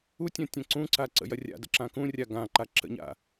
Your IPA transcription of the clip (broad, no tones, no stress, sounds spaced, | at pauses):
u tʲ ɐ̃ tʲ ɐ̃ ǀ ũ ǀ a ǀ ə̰ j ɐ rʲ a̰ d ə̰ ǁ ã k ũ rʲ a ɡ ã ǃ a ǁ ə̰ ɲ a̰